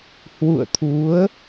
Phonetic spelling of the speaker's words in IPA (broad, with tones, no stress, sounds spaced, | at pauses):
h w ṵ˧˨ ə̯ t̪ʰ u˨˦ ə̯